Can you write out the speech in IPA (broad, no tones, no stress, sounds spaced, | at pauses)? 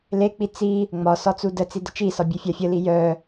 l e k͡p i t͡s i | ŋ͡m ɒ s ɒ t͡s u d ə t͡s i d ə t͡ʃ i s ɒ bʲ e fʲ a fʲ ə l i j œ